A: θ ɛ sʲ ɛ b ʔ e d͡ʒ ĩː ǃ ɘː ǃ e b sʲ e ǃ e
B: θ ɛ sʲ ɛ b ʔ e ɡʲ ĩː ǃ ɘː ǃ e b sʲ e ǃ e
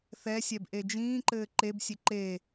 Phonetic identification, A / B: A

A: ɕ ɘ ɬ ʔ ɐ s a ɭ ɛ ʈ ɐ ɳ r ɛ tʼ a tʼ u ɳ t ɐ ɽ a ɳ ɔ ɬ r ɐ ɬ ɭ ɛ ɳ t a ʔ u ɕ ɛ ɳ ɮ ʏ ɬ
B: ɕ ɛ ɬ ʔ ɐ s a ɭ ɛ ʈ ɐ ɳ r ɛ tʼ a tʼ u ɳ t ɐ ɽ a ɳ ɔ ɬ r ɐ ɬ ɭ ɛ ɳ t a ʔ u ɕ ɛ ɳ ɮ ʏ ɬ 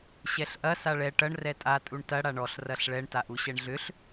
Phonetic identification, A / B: B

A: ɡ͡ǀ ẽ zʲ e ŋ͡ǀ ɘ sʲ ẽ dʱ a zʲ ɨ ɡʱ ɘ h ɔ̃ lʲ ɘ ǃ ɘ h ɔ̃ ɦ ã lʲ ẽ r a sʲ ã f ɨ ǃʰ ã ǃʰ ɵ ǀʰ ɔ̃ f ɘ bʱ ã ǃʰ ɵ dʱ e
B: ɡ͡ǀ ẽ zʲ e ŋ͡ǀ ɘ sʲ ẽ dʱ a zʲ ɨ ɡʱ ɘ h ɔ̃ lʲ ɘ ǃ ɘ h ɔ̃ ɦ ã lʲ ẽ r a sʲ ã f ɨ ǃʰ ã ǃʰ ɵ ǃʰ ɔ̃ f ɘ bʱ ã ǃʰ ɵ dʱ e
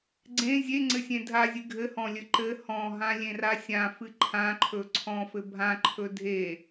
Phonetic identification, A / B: A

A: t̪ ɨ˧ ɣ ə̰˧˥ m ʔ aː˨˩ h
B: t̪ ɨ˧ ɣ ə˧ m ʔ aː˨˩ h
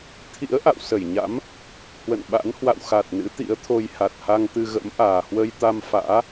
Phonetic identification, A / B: A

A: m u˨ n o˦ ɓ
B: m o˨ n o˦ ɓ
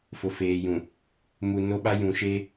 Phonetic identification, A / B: A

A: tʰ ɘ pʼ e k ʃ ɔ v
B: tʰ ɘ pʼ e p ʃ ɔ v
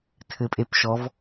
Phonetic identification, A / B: B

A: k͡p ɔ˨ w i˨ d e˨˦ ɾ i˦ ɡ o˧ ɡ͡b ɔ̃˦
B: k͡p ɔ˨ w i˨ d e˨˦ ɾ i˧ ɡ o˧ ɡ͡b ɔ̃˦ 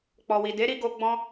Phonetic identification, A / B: B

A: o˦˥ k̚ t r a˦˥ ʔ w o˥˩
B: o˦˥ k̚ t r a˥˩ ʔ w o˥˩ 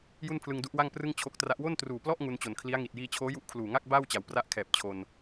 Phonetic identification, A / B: A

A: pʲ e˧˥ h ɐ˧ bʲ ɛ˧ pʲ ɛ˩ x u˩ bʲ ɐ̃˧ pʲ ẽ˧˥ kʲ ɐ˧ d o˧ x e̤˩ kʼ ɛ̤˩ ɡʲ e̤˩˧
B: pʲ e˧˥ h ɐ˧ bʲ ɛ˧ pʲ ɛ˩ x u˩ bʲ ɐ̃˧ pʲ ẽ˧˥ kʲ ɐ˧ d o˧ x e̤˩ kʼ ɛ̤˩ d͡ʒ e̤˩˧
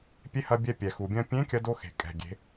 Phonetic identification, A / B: A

